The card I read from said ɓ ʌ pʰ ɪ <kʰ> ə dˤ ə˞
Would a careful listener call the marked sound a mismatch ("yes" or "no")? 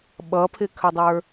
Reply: no